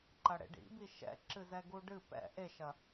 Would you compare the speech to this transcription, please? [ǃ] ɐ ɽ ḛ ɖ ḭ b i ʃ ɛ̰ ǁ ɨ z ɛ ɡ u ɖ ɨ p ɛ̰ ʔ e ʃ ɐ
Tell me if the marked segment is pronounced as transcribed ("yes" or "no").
yes